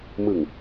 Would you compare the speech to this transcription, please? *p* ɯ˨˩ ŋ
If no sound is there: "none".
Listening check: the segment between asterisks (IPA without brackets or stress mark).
m